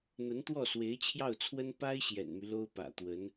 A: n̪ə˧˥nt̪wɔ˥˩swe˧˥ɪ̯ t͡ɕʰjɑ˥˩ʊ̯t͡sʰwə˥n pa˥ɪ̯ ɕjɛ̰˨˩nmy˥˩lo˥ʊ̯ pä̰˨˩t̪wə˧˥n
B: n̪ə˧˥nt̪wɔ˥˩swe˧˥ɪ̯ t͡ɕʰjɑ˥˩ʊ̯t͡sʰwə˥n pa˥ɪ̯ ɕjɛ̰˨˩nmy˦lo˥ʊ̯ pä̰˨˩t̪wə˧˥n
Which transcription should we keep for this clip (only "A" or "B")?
B